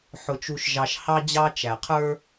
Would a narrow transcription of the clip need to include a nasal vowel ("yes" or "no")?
no